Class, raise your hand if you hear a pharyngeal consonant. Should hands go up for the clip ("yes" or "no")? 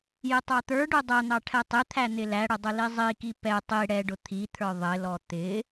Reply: no